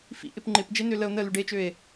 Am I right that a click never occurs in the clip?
no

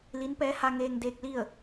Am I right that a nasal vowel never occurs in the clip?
yes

